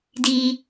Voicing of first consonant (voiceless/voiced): voiced